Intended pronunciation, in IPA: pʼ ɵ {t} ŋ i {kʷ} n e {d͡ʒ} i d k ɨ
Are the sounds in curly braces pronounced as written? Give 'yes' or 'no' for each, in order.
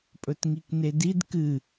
yes, no, no

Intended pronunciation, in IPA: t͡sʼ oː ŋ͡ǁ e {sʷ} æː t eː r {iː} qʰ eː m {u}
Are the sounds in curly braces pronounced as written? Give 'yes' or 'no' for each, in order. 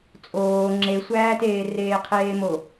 yes, no, no

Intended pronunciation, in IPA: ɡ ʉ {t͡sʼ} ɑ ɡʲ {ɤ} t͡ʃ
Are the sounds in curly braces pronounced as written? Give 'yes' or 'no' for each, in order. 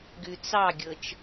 no, yes

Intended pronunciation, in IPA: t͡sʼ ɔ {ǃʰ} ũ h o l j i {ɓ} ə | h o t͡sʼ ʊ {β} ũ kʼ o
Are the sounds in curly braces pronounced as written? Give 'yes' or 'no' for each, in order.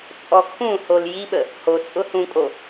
no, yes, no

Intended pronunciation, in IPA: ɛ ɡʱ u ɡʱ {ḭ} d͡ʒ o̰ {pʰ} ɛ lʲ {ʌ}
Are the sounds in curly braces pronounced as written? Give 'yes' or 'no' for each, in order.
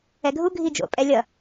no, no, yes

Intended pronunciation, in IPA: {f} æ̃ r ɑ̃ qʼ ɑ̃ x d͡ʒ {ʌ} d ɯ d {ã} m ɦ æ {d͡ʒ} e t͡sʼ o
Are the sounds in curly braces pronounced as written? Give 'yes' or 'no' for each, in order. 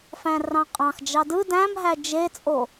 yes, no, no, yes

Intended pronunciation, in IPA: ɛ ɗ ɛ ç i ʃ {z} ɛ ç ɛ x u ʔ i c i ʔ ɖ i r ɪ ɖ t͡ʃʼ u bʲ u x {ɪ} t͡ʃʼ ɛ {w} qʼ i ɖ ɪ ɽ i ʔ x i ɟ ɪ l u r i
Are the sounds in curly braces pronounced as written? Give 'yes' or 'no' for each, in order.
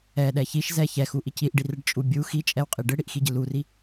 yes, no, yes

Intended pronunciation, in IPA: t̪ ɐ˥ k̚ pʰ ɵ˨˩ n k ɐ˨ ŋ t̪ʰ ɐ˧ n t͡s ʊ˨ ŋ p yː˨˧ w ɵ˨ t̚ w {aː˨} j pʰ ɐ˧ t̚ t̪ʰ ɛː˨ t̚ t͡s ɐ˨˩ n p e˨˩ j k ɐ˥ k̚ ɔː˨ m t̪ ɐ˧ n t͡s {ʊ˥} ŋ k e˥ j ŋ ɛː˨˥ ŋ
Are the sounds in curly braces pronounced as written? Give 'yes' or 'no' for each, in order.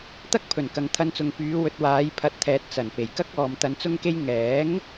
no, yes

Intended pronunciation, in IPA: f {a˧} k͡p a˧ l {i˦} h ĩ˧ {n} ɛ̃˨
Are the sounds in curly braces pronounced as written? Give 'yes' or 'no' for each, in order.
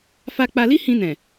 yes, yes, yes

